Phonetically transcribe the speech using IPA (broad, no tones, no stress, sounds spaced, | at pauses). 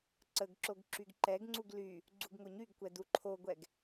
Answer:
ǀ ə ɡ ǁ o ɡ ǁ y ɡ ǃ ɛ ɡ ŋ͡ǀ u ɡ l y | ɡ͡ǀ u ɡ ŋ o ɲ y ɡ kʷ ɛ d u ǃʰ o ɡʷ ɛ ɡ